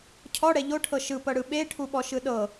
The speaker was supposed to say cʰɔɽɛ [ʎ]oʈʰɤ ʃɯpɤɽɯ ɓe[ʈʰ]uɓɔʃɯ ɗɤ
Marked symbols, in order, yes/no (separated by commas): yes, yes